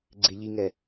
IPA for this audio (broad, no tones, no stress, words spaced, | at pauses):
ɡ͡ǀɪ ʎiŋɛ